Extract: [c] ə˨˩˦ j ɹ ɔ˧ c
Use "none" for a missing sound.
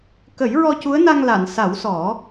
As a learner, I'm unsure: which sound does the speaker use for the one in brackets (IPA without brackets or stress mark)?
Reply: k